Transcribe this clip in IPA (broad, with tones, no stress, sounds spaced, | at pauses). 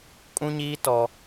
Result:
kʼ ũ˦ ɲ iː˦ t ɔ˦